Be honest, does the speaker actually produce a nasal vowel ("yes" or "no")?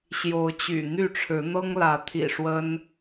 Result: no